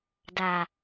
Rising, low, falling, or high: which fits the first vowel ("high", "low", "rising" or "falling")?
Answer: low